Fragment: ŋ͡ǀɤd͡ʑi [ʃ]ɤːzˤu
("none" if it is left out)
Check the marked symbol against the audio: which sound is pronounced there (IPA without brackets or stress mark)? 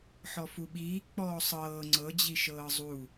ʃ